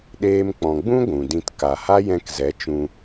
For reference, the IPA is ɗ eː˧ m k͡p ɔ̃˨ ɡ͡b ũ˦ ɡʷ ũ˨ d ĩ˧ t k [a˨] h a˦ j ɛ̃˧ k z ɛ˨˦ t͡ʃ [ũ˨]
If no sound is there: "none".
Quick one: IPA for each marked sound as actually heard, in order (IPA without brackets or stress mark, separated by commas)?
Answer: a˨, ũ˧